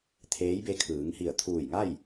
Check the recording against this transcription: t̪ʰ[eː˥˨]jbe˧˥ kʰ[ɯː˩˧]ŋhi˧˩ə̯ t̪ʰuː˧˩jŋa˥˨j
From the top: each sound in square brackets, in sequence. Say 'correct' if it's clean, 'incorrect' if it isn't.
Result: incorrect, correct

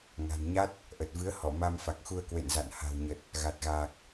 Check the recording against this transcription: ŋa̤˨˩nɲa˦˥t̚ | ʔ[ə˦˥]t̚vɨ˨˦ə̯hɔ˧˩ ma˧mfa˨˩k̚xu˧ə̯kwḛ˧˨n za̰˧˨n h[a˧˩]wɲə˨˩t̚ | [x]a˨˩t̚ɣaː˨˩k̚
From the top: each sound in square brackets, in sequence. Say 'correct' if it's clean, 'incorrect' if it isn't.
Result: incorrect, incorrect, incorrect

